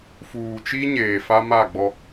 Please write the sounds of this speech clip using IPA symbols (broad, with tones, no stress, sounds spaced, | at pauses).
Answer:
f uː˨ t͡ʃ i˦ ɲ eː˨ f a˦ m a˦˨ ɡ͡b ɔ˦